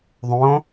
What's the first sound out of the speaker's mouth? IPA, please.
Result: ðˤ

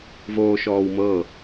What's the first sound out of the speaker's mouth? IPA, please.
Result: v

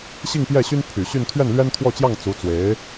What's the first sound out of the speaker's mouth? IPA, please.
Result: ɕ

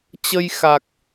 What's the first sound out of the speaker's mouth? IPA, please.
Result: t͡ɕ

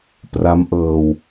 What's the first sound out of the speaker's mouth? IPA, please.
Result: p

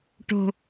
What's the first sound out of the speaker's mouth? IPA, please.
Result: ʈ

